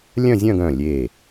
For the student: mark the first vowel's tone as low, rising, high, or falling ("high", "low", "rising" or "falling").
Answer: falling